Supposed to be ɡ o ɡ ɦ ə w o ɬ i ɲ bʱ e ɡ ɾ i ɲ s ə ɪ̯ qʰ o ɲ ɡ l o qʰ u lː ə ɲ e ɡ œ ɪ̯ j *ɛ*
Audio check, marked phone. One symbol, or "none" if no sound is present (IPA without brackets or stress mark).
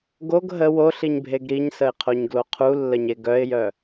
œ